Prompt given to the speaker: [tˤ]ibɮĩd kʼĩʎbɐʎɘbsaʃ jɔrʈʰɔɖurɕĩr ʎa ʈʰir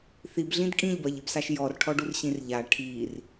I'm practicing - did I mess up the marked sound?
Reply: yes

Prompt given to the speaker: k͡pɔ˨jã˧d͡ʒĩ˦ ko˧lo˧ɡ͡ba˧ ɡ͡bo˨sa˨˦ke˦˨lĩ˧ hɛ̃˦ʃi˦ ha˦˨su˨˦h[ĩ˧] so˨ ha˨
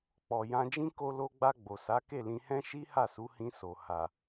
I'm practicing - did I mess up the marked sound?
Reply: no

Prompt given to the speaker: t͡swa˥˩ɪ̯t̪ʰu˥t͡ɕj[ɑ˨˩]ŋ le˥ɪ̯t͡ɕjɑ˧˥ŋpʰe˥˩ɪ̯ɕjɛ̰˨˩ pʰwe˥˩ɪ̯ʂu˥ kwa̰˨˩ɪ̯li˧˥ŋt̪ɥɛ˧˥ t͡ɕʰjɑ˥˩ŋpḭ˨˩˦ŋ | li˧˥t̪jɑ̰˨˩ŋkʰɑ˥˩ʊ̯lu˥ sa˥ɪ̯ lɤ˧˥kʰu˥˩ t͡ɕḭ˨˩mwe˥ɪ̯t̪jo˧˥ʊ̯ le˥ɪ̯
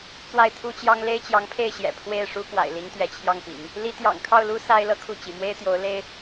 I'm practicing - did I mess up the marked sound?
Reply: yes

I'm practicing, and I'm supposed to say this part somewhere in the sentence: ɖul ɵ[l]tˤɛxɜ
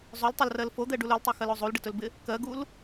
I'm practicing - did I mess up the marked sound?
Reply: no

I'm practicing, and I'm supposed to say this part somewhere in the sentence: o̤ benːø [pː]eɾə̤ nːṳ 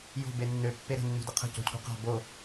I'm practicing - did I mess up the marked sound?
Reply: no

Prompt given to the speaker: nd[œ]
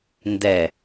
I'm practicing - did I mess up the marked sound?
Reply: yes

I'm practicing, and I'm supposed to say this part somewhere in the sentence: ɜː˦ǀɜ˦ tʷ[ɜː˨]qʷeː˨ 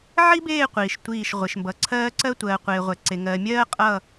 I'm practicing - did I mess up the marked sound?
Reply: no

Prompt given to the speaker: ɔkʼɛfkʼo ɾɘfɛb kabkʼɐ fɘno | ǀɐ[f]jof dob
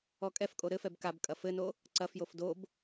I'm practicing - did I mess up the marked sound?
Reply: no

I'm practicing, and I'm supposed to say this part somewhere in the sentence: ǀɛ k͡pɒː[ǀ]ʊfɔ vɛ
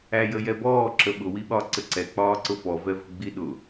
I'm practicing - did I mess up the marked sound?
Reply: no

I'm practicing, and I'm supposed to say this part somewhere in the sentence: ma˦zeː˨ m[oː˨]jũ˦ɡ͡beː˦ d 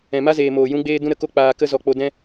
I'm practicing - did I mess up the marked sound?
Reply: no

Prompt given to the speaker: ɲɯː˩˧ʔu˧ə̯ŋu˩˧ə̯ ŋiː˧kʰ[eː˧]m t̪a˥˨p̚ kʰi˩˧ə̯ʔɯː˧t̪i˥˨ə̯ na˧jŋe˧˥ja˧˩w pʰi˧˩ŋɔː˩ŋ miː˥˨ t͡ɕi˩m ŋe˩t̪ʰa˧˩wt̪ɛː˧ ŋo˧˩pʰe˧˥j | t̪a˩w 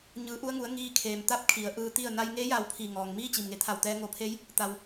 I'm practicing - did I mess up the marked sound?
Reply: yes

